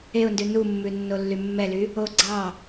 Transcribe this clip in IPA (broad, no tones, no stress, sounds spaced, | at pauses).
e ʊ̯ n d ʉ n u mː ʉ nː o lː y mː ɛ l y | o ɡ͡ǀ ɑ